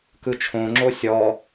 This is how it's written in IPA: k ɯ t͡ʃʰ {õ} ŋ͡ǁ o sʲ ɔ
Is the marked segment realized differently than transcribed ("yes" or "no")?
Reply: no